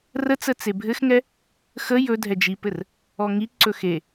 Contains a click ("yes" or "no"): yes